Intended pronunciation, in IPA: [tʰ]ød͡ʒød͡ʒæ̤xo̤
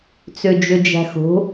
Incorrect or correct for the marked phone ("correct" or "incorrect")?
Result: incorrect